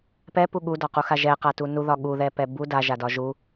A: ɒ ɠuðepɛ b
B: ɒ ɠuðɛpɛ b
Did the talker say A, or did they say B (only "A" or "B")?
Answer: B